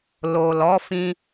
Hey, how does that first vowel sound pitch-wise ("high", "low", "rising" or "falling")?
low